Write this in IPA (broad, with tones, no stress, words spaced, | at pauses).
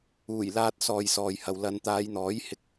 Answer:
uː˨˩jlaː˧t̚sɔː˨j sɔː˨jhɐ˨w lɐ˨˧n t̪aː˨˧jn̪ɔː˨˥jhɪ˧k̚